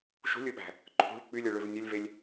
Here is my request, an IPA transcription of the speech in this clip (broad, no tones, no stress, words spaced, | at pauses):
ʃṳlʲɯɓæ̤ | ǃʰṳɭ k͡pylʲɯɭøv nʲølʲvelʲ